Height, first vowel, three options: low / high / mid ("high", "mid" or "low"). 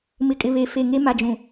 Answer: high